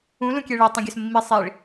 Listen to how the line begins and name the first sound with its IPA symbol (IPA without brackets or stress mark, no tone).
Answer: ũ